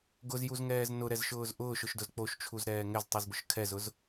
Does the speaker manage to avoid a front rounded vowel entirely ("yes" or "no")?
yes